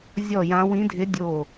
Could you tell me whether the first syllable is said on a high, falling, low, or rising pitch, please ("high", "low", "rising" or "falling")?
falling